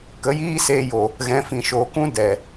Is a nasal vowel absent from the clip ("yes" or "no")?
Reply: no